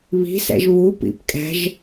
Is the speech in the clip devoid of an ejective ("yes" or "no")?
no